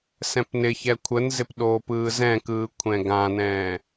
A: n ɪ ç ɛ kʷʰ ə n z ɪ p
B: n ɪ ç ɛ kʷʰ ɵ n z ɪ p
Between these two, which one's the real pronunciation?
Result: A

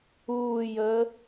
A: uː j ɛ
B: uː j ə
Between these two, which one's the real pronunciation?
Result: B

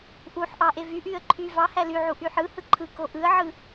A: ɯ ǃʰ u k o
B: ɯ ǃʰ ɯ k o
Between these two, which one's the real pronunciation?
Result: B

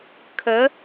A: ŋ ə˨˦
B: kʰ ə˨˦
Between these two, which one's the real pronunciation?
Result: B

